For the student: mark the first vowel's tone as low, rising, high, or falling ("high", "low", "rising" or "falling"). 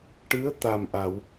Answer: rising